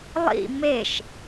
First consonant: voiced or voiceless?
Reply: voiced